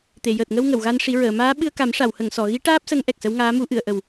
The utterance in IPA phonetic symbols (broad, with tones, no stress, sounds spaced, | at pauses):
t̪ e˨˩˨ j əː˨˩ t̚ ŋ ə˧ w ŋ ə˨˩˨ w ɣ a˧ n ʂ i˨˩˦ ɹ əː˨˩˨ m aː˧˥ ɓ ɨ˧ ə̯ k a˨˩˦ m ʂ a˨˩˨ w h ə˨˩˨ ŋ s ɔ˨˩˨ ɣ i˧˥ ʈ aː˦˥ p̚ s ə˧˥ ŋ ʔ ɛ˨˩ k̚ s ə˧˥ w ŋ aː˧˥ m u˨˩˦ ʔ ɨ˨˩˨ ə̯ ʔ ə˨˩ w